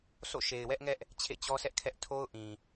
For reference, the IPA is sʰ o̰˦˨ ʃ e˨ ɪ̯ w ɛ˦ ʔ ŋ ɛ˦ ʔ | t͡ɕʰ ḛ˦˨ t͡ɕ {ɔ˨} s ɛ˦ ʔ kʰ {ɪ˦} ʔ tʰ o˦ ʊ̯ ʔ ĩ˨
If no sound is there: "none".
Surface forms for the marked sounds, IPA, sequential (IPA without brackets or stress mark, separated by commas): ɔ˦, ɛ˦